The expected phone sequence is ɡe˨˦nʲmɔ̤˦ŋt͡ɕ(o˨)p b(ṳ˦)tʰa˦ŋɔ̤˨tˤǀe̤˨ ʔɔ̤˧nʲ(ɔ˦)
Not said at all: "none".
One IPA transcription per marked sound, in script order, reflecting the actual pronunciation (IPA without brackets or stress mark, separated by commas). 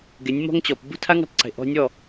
ɔ˨, ṳ˦, ɔ˦˨